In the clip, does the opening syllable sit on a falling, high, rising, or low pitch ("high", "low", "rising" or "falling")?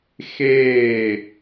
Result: falling